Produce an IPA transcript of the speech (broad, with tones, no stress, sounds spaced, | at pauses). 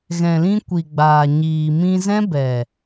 ɣ ɛ̃˨ l ĩ˧ kʷ i˨ ɡ͡b aː˨ ɲ iː˨ m ĩ˧ z ɛ̃˦ b ɛ˨